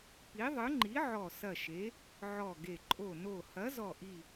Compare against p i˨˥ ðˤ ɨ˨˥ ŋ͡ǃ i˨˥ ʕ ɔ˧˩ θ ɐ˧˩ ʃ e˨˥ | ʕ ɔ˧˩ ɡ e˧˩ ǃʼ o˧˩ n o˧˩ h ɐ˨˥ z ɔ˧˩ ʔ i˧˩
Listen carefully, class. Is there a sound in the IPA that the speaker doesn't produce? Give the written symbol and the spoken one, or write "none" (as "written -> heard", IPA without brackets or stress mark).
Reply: θ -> s